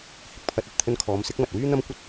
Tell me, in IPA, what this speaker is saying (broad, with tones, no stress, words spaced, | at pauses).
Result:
hɪ˧k̚pʰɐ˧t̚ ɐ˨t̚ t̪ʰɵ˧nkʰɔː˨˧msɪ˨˥k̚ mɐ˨t̚wyː˥n̪ɐ˥mkʷɐ˥t̚